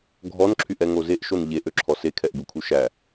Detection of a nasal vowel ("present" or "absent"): absent